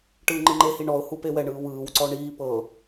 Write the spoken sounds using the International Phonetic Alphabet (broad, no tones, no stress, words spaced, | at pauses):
ʈɯːŋ͡ǃɯŋ͡ǃehi ɳɔʊ̯hu pewɛɳɯː wɯːwǀɔ ɳiː pɤ